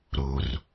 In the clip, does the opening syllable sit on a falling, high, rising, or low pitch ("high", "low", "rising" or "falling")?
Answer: low